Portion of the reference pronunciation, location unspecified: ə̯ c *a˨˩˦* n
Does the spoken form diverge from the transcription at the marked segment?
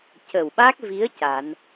no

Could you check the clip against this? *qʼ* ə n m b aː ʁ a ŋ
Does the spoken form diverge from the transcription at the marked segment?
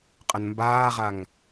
no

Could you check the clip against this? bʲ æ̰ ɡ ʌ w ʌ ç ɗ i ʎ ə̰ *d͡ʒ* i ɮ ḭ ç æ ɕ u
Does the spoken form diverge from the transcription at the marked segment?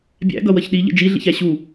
no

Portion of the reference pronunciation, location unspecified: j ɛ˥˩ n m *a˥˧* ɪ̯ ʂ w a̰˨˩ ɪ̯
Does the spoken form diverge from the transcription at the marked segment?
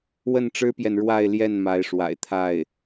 yes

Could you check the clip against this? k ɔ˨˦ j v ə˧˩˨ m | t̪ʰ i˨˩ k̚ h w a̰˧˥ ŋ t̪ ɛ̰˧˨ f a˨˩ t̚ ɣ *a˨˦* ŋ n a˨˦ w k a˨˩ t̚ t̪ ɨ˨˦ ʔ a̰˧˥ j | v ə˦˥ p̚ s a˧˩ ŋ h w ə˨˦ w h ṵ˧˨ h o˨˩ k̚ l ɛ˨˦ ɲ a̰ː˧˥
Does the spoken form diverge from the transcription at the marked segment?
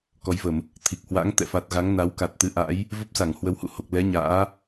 no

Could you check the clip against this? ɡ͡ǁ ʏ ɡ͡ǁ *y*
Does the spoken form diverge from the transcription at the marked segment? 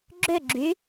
no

